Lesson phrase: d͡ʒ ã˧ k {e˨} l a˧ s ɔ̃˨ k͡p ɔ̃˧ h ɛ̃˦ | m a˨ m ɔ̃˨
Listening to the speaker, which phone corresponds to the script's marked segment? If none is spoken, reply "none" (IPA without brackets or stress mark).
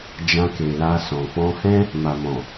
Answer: e˨